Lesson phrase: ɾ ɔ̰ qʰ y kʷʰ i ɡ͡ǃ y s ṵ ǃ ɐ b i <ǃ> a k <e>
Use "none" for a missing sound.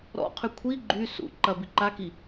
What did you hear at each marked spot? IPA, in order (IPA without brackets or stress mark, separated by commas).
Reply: ǃ, i